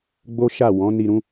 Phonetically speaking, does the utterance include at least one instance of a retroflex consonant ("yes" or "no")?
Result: no